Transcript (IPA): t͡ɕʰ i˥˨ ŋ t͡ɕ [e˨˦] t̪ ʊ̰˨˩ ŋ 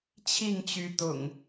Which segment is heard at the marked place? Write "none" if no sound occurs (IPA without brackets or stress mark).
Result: y˨˦